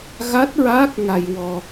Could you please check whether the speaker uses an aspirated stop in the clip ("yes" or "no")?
no